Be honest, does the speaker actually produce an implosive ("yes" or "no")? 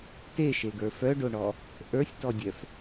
no